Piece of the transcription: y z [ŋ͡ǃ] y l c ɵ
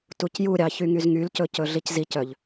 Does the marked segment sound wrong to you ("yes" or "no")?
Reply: yes